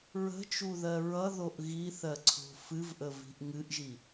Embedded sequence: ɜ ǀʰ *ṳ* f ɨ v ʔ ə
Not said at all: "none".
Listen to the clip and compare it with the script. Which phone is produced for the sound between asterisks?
o̤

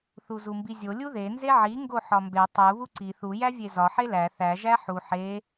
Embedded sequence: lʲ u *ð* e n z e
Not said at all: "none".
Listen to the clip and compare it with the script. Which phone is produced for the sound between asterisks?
ð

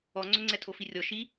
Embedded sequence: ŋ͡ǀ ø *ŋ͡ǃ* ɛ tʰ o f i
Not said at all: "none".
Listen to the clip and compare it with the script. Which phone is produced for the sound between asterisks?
ŋ͡ǀ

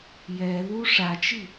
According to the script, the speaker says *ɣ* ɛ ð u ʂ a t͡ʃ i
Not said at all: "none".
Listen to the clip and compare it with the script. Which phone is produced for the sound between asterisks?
j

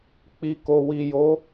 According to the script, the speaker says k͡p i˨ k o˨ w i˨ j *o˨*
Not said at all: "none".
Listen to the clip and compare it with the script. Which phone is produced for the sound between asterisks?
o˨˦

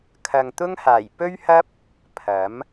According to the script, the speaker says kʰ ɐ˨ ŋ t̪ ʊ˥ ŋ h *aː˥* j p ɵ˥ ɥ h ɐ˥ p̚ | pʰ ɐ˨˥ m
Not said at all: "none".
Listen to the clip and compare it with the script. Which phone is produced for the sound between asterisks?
aː˨˩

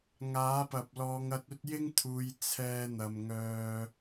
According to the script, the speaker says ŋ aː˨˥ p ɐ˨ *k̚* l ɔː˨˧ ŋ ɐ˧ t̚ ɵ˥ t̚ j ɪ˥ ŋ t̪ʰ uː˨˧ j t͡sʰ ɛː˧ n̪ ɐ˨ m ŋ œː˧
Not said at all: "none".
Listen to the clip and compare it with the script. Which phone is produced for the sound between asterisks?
p̚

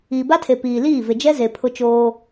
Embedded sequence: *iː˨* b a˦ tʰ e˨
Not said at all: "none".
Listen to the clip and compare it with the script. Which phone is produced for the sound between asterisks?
iː˨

